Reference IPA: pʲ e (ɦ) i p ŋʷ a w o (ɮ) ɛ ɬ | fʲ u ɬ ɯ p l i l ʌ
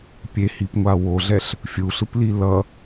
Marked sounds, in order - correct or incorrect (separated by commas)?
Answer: incorrect, correct